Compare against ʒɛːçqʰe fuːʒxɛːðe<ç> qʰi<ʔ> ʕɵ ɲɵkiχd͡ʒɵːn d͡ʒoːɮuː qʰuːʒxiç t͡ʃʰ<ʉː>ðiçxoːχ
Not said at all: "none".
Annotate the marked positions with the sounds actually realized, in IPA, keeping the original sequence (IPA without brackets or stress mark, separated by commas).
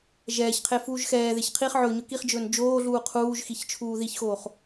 ç, χ, uː